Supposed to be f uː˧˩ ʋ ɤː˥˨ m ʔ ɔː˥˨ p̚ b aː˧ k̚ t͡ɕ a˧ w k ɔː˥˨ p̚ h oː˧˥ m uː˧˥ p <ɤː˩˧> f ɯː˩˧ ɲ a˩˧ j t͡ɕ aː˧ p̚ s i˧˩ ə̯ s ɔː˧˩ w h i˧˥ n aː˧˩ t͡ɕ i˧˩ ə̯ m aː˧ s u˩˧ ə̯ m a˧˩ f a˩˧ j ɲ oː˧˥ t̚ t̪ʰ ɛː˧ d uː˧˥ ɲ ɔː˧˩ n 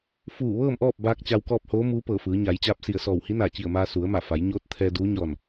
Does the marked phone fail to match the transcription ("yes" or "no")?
yes